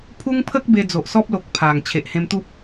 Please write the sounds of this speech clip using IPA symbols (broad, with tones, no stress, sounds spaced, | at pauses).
pʰ u˦ ŋ pʰ ə˦ k̚ b e˧ d͡z o˨ ʔ s ɔ˦ p̚ l o˨ k̚ pʰ a˨˩ ŋ t͡ɕʰ e˨ ʔ h ẽ˧ m t̪ u˦ p̚